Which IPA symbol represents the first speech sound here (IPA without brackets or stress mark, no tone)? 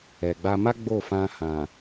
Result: ɛ